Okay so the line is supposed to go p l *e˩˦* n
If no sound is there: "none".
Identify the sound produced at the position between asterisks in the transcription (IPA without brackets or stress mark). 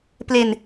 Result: e˧